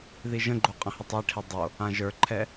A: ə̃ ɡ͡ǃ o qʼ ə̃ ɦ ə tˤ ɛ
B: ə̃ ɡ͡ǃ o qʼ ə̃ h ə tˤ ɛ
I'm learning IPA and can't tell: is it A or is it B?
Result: B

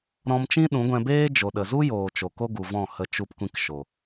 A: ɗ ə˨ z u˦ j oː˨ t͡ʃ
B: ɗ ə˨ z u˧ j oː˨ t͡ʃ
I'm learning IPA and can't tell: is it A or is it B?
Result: A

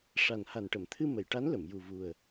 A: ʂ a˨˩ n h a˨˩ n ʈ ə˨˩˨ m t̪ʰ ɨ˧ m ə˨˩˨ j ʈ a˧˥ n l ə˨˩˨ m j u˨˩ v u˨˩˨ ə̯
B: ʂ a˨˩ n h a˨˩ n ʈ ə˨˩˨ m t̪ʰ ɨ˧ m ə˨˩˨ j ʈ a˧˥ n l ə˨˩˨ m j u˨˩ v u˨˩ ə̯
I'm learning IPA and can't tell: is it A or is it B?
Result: B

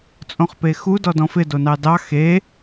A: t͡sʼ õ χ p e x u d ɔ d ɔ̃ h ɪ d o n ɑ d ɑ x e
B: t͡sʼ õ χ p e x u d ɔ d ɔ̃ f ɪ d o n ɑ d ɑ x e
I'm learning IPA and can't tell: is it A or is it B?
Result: B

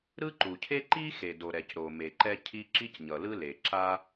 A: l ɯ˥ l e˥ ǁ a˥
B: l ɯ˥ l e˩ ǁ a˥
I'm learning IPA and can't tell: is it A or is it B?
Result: B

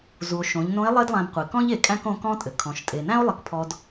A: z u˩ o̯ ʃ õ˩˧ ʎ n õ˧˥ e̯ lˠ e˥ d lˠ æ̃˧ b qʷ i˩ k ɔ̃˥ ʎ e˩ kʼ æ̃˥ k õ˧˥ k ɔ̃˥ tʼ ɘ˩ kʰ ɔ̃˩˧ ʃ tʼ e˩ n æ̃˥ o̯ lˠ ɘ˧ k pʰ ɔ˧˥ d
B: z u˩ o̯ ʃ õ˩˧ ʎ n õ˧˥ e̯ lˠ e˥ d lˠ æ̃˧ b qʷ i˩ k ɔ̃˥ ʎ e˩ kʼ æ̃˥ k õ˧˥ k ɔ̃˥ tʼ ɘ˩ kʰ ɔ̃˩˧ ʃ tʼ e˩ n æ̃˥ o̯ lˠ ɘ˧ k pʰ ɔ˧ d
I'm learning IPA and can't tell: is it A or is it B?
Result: B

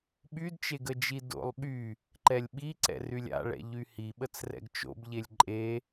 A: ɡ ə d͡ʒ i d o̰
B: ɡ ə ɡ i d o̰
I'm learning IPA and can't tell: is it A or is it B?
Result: A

